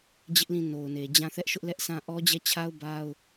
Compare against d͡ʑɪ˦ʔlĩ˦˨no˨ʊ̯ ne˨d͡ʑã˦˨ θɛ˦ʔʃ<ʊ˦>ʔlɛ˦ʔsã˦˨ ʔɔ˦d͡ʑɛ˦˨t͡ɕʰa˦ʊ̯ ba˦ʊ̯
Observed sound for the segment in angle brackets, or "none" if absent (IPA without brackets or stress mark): ʊ˦